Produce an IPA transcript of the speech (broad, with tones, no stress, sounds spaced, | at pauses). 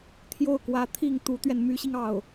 t̪ʰ j o˥˩ ʊ̯ k w ä˧˥ t̪ʰ i˥˩ ŋ t̪ u˧˥ t̪ ɥ ɛ˧ n m y˧˥ ɕ i˧ ŋ ɑ˥˩ ʊ̯